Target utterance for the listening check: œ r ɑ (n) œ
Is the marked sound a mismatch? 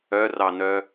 no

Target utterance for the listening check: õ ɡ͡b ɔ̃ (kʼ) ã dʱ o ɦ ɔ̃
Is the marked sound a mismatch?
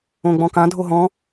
yes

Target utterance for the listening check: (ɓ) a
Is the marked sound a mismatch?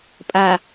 yes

